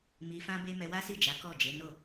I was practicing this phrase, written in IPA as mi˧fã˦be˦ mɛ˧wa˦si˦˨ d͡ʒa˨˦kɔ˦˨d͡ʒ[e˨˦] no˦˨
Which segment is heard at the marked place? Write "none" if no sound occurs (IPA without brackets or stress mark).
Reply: e˨˦